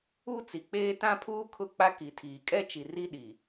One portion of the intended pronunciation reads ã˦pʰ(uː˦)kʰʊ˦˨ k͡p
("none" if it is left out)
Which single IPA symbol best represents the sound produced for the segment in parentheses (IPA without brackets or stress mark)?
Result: uː˦